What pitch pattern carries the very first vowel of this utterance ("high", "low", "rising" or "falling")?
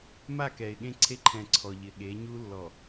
falling